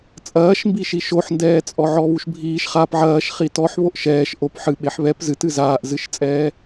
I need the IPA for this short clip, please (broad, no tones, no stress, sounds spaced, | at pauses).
t͡sʼ ɐː ʃ m b i ʃ i ʃ o ħ n d ɛː t͡sʼ ɔ ʕ ɔ β u ʃ bʱ iː ʃ χ a p ʕ ɐː ʃ χ i t ɔ ħ β o ʔ ʃ ɛː ʃ ʔ o p ħ ɨ ɓ e ħ β ɛ p z ɨ t ɨ z aː ʔ z ɨ ʃ t͡sʼ ɛː